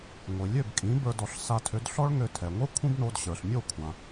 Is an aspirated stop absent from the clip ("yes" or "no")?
no